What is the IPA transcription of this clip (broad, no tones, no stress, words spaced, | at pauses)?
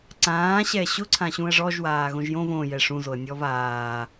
ǀãːɕɛ ɕʊǀʰãɕũə̯ ʐɔʒwaːɣõʒ jõv õjɛ ʂũzoə̯nʲɔv aː